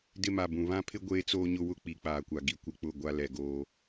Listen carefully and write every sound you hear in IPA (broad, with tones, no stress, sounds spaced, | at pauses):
d ɪ˦ m a˨ b ũ˨ β ã˦ pʰ ɪ˦ ɡʷ eː˦ t͡s oː˦ ɲ ʊ˦ w ʊ˦ k͡p i˨ k͡p aː˨ kʷ a˨ ɡ i˦ kʷ ɪ˦ k͡p ʊ˦˨ ɡʷ a˦ l ɛ˨ ɡ oː˦